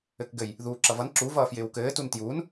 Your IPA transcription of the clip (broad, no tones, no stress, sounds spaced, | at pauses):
ɘ k ɡ ɘ j | ð uː ǁ ʌ v ʌ n ǁ u v ʌː f j ɪː w k ɘː t u n t j uː n